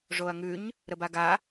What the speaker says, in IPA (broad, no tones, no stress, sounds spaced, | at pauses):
ʐ o ɐ̯ ŋ ʉ ɲ | ɾ ə b a ɡ a